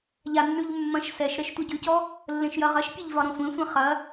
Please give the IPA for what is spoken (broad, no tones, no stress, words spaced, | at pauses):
ʎanːʉʎ mːɐ̃ʃ sɛʃ ɾɛʃtʷɐɟʉcɔ | lːẽʃjɐʁɐʃpʲeʎ vɒɾɔ̃sʷẽsʷẽ χɐ